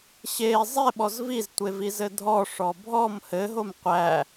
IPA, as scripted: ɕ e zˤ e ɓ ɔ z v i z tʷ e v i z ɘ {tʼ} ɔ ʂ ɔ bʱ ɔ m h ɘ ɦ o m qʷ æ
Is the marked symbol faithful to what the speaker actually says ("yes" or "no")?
no